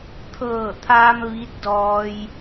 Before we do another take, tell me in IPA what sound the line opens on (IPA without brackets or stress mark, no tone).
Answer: t̪ʰ